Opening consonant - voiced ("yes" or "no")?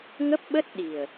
yes